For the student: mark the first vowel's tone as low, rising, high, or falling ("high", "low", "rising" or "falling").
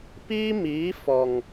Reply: high